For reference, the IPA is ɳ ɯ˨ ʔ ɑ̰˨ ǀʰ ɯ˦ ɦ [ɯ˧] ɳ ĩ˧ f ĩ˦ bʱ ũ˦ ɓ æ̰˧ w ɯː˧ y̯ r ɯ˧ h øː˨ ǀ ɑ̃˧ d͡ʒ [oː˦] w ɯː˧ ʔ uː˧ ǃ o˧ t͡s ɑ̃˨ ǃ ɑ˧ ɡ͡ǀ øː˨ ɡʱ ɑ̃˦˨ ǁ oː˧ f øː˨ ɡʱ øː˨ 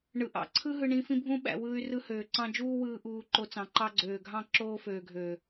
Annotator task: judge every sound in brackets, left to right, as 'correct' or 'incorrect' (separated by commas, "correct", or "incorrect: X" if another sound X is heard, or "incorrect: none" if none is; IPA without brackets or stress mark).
correct, incorrect: uː˦